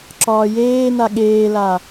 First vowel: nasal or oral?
oral